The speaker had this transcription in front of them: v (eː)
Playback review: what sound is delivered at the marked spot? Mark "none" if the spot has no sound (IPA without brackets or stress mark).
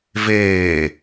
eː